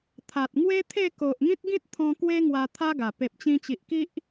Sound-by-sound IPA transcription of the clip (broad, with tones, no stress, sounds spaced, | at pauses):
t̪ʰ a˨ t̚ ŋ w e˦ t̪ʰ e˥˧ k o˨ ʔ ŋ ĩ˦ t̚ ɡ ĩ˦ t̚ t̪ʰ ɔ̃˧ k w e˦ ŋ w a˧ t̪ʰ a˦ ɡ a˨˩ p e˨ p̚ t͡ɕ ĩ˧ t͡ɕ i˨ ʔ k i˦ ʔ